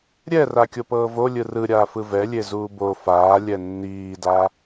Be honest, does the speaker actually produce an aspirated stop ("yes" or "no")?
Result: no